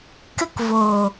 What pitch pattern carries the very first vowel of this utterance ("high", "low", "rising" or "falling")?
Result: high